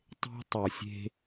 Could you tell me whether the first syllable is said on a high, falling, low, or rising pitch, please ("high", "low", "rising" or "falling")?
high